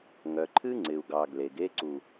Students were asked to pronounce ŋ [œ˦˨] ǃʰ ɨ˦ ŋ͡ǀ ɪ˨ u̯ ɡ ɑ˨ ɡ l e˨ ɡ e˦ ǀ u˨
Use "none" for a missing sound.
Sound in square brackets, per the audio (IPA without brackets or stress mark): œ˨